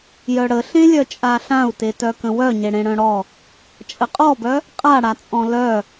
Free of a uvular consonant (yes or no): no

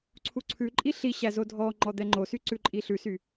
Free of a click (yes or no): no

